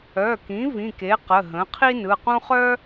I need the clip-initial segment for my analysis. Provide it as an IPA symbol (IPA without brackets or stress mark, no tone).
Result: œ